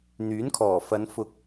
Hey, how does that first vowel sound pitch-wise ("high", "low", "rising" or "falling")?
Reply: rising